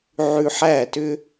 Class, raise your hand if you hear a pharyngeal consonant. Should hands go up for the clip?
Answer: yes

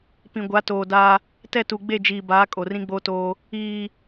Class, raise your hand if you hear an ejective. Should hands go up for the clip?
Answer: yes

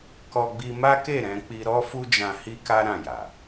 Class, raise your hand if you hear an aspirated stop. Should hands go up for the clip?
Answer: no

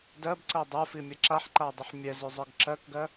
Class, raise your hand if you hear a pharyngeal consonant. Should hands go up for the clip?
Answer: yes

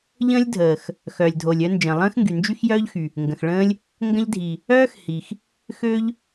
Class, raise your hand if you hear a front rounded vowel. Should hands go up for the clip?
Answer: yes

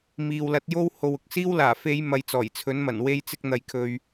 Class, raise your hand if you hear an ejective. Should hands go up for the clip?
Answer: no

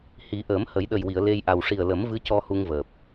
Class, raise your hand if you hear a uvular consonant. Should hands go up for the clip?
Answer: no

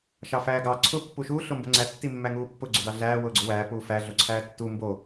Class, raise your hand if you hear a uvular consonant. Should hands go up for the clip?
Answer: no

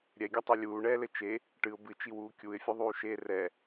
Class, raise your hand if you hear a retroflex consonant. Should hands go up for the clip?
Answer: yes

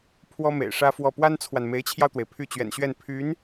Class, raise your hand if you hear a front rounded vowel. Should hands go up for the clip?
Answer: yes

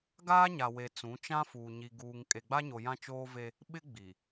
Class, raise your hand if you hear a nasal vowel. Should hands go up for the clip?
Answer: yes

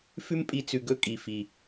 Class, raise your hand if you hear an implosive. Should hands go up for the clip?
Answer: no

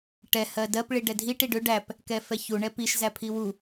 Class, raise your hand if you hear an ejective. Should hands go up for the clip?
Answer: no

